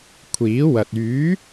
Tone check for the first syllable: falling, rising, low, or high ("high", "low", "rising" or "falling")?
rising